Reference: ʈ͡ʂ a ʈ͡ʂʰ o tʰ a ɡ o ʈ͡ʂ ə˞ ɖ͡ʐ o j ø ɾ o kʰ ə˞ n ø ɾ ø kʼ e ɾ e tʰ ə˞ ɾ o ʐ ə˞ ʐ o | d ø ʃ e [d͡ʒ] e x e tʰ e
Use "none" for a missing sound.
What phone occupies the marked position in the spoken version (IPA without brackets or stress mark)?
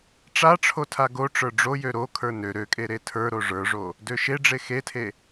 ɖ͡ʐ